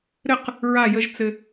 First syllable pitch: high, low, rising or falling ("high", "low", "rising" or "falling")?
falling